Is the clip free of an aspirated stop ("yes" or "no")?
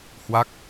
yes